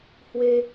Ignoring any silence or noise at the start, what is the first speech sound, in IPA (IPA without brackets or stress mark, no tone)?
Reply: h